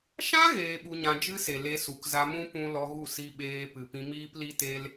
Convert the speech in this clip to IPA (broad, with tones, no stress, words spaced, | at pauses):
ʃã˦ ɣeː˧ɓu˧ɲã˧ d͡ʒɨ˦se˨ le˧su˨kza˧mũ˦ pũ˦ lɔ˧ɣu˦˨si˧ɓeː˧ pɨ˨pĩ˧ miː˦pli˦te˦l